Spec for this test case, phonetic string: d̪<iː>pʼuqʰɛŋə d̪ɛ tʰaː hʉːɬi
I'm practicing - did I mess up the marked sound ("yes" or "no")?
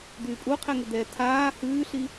yes